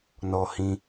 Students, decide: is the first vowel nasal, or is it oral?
oral